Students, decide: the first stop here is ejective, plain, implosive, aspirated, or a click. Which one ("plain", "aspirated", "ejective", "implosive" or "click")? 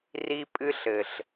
ejective